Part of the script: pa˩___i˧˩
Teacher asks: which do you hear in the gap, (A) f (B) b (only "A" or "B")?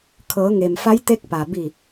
B